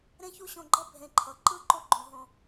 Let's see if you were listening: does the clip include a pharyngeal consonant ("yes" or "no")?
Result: no